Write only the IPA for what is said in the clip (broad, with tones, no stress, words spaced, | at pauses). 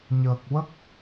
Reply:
ɲəː˨˩k̚wə˦˥k̚